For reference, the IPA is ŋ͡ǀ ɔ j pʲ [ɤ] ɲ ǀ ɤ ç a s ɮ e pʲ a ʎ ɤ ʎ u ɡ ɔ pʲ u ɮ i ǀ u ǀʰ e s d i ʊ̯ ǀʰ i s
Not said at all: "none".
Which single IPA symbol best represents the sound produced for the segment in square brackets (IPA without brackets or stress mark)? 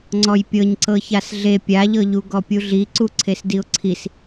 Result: ɤ